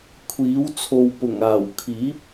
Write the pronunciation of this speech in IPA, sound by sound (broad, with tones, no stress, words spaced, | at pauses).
kʷʰiː˨˥w t͡sʰo˧w pʊ˨˩ŋaː˨˩wkʰiː˨˥p̚